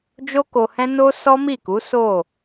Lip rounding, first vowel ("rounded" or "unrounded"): rounded